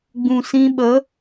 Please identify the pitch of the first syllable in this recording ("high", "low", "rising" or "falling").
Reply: low